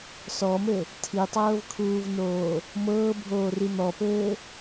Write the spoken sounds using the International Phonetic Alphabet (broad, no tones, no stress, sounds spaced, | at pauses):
s ɔ m ɘ | tʰ i tˤ ɤː v kʰ uː v n oː | m ɤː bʱ oː r i n̪ ɔ p ɘː